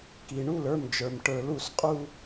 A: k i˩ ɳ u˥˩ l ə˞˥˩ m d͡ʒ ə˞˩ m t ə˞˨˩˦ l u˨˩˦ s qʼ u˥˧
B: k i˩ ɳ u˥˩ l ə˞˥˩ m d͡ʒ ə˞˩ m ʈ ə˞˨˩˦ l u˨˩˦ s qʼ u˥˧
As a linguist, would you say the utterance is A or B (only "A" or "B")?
B